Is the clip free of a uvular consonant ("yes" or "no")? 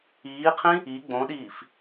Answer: no